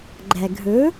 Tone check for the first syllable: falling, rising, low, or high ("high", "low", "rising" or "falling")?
low